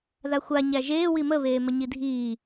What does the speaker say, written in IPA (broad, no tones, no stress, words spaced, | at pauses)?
ðaxʷa ɲæʒeː wimə βeːməɲidʱiː